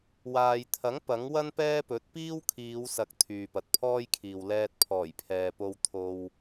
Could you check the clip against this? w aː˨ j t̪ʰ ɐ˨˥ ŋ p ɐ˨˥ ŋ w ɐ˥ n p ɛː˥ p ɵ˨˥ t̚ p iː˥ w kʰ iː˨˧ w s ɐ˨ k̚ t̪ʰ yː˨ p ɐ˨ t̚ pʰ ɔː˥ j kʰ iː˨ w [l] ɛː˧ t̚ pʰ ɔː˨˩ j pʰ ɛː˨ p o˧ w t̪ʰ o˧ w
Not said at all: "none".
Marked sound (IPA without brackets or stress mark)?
l